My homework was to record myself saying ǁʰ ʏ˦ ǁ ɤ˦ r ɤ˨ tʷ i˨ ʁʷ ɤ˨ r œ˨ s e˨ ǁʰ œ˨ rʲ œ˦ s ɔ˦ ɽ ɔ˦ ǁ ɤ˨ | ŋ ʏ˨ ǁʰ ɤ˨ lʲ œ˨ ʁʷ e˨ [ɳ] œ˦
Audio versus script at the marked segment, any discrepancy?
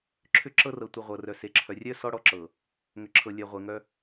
yes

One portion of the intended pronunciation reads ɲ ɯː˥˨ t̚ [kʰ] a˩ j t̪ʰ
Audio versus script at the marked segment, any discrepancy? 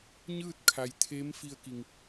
no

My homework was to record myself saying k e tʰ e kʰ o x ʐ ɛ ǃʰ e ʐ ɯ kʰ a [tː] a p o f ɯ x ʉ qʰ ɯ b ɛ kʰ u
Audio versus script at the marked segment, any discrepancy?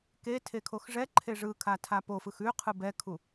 yes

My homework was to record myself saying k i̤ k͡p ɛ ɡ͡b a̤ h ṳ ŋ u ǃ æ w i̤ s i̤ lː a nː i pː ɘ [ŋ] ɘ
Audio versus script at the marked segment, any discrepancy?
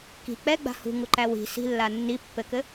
yes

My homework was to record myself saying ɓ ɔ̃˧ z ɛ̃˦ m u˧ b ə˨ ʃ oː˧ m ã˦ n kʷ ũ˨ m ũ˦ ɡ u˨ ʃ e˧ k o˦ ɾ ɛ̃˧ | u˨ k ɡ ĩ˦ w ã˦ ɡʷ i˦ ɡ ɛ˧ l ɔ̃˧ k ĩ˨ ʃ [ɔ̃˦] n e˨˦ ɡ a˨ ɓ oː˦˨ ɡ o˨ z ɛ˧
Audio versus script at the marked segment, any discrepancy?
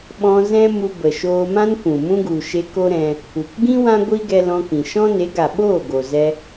no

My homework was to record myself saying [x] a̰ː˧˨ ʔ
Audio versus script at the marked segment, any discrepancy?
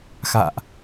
no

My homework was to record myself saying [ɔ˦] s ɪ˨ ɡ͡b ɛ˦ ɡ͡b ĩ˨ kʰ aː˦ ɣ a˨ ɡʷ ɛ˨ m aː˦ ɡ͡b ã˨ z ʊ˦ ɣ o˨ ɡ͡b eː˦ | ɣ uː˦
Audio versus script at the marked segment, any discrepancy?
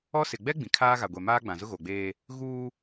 no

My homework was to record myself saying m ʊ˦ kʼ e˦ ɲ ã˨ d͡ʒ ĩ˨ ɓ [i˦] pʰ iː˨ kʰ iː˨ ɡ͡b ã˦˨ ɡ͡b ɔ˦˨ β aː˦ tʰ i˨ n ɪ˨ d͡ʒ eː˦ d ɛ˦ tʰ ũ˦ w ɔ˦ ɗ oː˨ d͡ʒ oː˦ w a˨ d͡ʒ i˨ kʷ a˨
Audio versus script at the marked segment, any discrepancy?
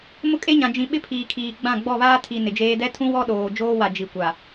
yes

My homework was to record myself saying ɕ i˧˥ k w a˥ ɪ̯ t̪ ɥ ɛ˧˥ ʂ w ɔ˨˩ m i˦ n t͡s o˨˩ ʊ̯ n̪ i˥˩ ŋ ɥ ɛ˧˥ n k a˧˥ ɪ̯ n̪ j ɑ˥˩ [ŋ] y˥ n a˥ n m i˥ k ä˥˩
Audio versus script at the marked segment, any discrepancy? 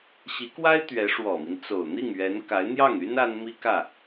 no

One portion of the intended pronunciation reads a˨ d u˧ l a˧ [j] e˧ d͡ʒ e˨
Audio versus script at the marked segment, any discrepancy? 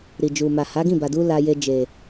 no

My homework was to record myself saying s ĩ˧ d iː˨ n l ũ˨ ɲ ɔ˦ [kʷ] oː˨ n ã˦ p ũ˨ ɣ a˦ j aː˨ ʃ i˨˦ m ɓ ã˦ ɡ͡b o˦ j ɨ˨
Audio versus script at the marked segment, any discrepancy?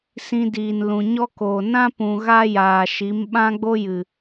yes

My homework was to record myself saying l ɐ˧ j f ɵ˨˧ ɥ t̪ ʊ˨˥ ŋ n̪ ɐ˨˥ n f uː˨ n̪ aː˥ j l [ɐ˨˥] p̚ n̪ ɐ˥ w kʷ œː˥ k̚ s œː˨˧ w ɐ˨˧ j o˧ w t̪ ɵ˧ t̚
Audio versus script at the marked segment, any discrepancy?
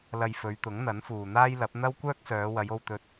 no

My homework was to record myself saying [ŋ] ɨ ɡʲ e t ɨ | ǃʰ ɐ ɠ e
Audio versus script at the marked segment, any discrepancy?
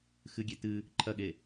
yes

